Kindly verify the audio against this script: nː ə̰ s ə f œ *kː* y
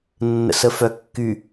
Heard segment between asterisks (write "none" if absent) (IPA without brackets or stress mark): kː